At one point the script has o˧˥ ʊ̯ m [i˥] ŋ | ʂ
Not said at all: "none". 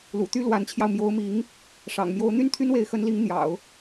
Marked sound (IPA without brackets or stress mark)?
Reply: i˧˥